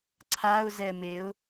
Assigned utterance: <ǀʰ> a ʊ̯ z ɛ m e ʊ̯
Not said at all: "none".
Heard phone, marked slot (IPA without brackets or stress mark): ǀʰ